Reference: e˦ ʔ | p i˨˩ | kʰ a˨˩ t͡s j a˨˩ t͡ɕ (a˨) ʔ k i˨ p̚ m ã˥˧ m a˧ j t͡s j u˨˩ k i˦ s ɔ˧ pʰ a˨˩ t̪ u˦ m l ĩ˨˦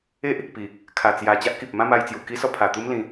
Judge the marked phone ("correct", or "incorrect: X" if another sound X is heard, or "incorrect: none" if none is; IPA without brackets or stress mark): incorrect: a˦